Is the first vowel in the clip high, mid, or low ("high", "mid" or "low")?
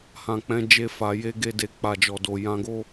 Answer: low